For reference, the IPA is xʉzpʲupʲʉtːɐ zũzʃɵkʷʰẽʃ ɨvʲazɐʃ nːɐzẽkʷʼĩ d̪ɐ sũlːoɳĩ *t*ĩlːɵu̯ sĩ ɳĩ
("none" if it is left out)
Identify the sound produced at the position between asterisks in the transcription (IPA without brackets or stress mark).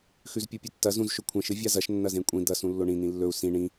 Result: n̪